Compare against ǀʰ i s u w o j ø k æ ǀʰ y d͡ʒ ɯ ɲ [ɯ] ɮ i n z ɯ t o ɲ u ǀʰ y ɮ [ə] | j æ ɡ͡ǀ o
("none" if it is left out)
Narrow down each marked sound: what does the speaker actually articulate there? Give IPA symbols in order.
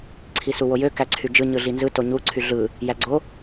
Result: ɯ, ɯ

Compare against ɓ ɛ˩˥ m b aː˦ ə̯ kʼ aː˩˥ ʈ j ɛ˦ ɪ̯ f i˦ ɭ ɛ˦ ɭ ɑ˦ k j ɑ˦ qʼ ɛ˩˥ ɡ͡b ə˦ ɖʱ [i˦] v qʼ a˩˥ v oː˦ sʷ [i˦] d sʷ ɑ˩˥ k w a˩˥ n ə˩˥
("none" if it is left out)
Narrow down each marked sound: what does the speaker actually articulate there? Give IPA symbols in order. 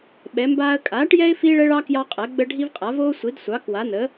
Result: i˦, i˩˥

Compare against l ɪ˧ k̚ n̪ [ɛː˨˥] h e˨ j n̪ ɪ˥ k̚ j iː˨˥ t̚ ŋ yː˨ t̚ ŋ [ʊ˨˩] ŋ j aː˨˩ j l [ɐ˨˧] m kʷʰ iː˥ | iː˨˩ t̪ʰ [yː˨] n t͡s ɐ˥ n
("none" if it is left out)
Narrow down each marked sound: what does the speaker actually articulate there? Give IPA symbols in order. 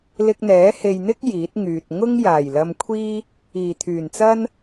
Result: ɛː˨˥, ʊ˥, ɐ˧, yː˨˩

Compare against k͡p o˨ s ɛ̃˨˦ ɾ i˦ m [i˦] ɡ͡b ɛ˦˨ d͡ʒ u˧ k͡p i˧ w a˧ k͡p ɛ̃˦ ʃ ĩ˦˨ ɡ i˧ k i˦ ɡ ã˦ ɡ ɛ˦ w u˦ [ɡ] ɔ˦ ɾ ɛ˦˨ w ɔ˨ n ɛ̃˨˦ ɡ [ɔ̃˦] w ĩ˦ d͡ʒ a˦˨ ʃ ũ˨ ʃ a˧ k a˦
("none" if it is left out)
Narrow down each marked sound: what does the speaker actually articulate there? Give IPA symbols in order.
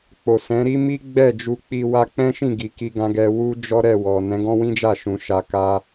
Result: i˦, d͡ʒ, ɔ̃˦

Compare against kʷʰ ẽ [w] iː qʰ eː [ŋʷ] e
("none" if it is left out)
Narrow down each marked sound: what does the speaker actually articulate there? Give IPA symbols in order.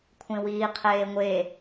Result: w, ŋʷ

